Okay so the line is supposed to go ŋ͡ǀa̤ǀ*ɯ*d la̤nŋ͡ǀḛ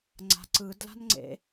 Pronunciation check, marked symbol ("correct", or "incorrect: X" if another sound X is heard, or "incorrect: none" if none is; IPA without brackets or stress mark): correct